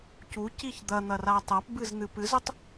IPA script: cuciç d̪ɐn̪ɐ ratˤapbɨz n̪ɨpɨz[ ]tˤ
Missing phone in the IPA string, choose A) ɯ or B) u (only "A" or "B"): B